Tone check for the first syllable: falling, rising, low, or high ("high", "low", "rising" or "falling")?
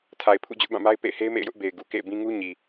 low